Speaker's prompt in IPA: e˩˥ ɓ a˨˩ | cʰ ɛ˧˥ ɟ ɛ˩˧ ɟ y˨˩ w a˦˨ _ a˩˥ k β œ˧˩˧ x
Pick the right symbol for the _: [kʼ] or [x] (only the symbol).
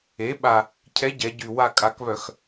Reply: kʼ